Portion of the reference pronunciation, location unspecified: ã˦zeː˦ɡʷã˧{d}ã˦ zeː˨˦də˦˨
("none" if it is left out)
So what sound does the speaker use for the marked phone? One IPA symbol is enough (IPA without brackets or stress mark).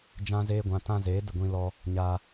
t